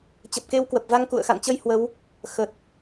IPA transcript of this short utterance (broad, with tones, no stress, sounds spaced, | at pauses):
t͡ɕ ə˨˩ p̚ k e˧ w k w ə˨˩ p̚ v a˧ ŋ k ṵ˧˨ ə̯ x a̰˧˨ n t͡ɕ ə˧ j h w ə˨˦ w | x ə˨˩ t̚